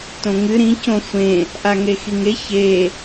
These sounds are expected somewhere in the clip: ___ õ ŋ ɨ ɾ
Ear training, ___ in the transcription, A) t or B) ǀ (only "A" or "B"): A